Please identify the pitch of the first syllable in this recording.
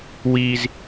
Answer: low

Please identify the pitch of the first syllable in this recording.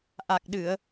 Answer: low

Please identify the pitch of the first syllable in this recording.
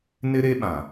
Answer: high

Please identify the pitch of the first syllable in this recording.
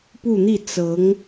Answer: falling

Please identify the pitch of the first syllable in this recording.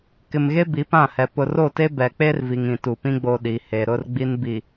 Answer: low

